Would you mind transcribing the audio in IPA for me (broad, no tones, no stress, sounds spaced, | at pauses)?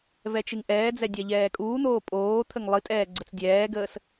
v ɛ t͡ʃ ɨ ŋ ʔ ɛː d͡z ɛ dʲ a ʎ ɛː kʼ uː n̪ oː pʼ oː t̪ʰ ə ŋ lˠ ɨ tʼ ɛː ɡ͡ǀ ə t͡s dʲ ɛː ɡ əː s